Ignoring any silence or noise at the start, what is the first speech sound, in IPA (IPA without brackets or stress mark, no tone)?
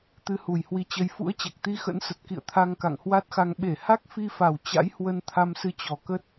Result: t̪